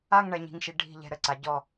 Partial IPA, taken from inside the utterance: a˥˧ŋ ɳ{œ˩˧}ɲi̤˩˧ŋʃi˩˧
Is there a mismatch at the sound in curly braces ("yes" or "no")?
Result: yes